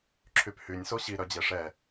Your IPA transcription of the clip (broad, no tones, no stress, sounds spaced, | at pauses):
ǁʰ y p h y nʲ s o ɕ i ɾ œ d͡ʑ e ʂ ɛ